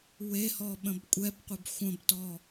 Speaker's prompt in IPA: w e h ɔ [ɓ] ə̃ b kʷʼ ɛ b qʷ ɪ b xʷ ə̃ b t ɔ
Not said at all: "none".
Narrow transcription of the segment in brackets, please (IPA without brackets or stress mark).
ɓ